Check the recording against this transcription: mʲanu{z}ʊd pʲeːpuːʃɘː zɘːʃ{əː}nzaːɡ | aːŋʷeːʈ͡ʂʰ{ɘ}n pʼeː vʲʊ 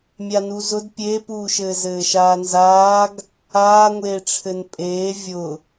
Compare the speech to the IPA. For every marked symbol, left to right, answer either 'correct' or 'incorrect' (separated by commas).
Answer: correct, incorrect, correct